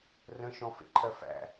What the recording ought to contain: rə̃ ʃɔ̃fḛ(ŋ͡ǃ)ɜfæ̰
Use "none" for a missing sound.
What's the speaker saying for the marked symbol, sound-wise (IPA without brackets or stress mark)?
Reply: ǃʰ